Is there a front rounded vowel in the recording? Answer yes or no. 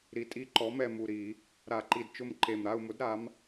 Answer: no